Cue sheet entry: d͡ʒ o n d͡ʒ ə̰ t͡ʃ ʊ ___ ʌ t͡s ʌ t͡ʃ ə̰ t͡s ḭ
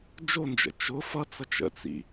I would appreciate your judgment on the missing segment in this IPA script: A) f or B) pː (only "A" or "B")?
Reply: A